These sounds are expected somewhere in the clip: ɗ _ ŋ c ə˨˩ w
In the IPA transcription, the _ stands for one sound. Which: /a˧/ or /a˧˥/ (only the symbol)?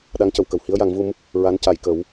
a˧˥